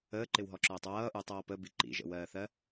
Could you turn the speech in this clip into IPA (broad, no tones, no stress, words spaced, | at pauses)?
əːǃɪwɦɔǁɔːtˤ wʌːʔuːtˤɔː pəbi ǃḭʒə̰wɜːθɜ